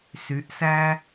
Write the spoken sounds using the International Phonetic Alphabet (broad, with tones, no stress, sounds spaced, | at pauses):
s y˩˥ ʔ s æ˥